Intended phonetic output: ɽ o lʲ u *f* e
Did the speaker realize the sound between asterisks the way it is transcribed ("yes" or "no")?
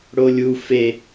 yes